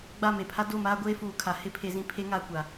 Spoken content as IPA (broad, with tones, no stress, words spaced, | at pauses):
ɡ͡ba˦˨me˨pʰa˦ do˦˨maː˦ ɡʷeː˦fuː˨kʰa˨ hɪ˦˨ pʰe˦zĩ˦ pʰe˦ ŋaː˦kʷa˨